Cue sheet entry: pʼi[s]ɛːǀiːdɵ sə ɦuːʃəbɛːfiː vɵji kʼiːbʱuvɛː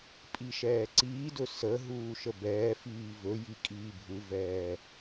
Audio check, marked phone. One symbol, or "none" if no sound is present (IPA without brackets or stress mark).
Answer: ʃ